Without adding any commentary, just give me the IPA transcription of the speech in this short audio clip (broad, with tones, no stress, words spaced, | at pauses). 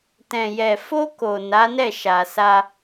tɛ̃˨jɛ˨ fo˧ ko˨ na˨˦nɛ˦˨ʃa˨sa˧